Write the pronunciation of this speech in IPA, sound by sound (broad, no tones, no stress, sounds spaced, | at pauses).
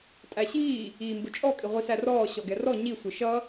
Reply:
tʼ æ ɕ iː | iː m b ʊ t͡ʃʼ ɔ kʼ ɪ ʁʷ i s æ r ɔː ɕ ɔ ɡ ɛ r ɔ ɲ i sʷ ɪ ʃ ʌ